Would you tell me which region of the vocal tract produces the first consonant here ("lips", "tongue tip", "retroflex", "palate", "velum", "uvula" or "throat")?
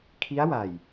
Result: velum